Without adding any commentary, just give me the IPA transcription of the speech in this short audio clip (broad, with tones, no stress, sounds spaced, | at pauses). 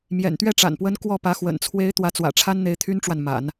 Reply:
m j ɛ̰˨˩ n t̪ ɥ ɛ˥˩ ʈ͡ʂ a̰˨˩ n p w ə˧˥ n k w ɔ˥˩ p ä˧˥ x w ə̰˨˩ n t͡sʰ w e˧˥ ɪ̯ t̪ w ä˧˥ t͡s w ä̰˨˩ ʈ͡ʂʰ a˥ n n̪ e˧˥ ɪ̯ t̪ʰ y˥ n ʈ͡ʂ w a˨ n m a̰˨˩˦ n